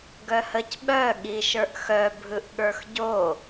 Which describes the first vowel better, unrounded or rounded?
rounded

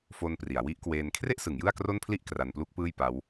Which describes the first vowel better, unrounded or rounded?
rounded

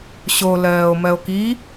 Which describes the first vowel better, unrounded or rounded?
rounded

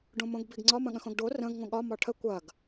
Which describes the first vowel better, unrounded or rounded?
rounded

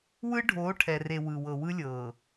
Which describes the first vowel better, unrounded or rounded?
unrounded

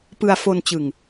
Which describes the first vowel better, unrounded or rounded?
unrounded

